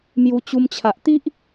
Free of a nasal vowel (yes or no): yes